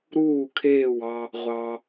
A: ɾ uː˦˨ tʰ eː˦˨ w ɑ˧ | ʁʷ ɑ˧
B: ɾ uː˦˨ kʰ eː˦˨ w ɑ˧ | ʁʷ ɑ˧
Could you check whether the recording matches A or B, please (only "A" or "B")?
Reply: B